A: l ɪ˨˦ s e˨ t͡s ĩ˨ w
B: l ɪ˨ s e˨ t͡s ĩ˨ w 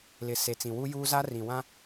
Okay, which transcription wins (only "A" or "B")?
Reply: B